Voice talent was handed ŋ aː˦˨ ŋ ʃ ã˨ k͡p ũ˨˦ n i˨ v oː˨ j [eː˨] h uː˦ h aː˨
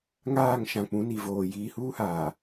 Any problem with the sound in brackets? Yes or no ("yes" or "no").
yes